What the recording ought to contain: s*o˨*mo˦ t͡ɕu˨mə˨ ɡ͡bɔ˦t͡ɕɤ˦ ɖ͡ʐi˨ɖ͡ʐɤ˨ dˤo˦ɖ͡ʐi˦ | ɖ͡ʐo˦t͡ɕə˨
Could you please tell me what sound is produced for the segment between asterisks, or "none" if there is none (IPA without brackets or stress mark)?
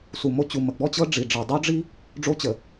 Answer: u˨